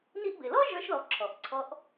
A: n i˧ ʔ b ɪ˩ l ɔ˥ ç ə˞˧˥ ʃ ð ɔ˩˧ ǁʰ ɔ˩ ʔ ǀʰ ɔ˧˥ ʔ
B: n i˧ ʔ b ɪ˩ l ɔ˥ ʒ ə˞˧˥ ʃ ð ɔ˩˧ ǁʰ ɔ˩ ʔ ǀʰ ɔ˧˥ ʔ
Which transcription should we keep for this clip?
B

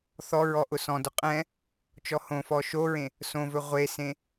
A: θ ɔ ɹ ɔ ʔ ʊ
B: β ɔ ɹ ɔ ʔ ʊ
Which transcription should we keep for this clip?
A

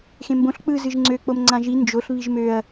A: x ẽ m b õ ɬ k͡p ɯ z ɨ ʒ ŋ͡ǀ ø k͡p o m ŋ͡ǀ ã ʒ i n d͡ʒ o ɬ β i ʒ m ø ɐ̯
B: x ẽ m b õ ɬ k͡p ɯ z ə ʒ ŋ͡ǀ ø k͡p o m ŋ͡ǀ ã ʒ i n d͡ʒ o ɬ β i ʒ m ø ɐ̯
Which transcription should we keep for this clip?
A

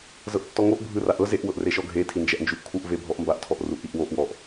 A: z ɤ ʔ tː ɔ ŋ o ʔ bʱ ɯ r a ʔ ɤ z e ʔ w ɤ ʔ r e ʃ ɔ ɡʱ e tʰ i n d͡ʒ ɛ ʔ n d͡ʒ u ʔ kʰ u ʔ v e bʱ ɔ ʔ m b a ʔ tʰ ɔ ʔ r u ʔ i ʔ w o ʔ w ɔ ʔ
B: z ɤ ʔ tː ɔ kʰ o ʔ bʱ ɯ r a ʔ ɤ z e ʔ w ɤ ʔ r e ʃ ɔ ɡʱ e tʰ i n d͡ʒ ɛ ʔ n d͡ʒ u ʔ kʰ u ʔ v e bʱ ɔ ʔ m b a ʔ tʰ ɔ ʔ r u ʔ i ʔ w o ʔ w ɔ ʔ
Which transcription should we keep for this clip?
A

